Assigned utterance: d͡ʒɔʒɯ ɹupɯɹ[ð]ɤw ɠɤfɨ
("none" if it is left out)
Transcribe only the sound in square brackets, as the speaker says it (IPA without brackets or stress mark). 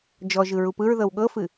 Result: ð